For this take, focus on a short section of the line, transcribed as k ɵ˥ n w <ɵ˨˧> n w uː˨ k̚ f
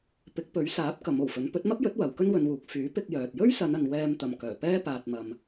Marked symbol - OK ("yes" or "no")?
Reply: yes